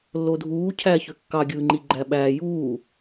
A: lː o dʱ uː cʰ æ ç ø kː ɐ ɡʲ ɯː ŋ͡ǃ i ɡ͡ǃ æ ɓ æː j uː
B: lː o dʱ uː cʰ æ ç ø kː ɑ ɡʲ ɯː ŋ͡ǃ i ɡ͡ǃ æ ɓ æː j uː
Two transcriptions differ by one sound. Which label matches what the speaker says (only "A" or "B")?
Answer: B